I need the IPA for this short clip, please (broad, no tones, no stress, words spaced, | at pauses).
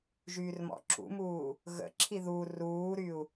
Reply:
ʒyːrmɔ̰ǁṵmuː | ɣə̰ǁʰi ðu ruːɾyu̯